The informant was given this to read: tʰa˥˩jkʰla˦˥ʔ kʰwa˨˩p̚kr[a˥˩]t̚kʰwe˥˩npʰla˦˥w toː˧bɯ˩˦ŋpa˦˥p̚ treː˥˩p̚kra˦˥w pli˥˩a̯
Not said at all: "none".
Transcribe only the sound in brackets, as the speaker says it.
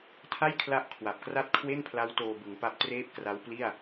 a˥˩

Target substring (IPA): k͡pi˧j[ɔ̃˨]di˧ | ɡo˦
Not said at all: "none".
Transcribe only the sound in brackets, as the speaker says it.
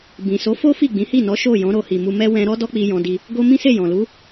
ɔ̃˧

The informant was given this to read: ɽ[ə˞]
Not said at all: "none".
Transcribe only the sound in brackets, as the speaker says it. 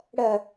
ɐ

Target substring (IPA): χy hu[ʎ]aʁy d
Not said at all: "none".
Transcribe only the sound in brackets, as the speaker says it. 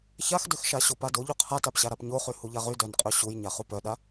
ʎ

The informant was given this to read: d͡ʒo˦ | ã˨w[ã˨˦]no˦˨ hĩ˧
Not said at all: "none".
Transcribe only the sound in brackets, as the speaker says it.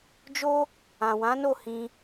ã˨˦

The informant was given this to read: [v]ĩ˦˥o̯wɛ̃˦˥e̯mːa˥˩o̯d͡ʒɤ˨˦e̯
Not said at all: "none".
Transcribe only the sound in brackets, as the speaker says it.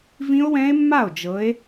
v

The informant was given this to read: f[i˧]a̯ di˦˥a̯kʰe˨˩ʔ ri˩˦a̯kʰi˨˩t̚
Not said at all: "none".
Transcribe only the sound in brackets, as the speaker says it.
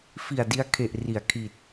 i˨˩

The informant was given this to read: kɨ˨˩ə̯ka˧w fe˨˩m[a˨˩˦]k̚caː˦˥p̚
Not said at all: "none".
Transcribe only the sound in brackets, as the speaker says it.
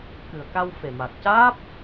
a˨˩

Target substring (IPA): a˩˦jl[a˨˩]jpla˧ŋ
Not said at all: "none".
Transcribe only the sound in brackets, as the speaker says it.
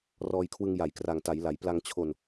a˩˦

